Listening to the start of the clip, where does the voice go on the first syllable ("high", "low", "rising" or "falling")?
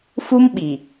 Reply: high